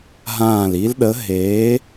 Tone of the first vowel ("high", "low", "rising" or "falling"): falling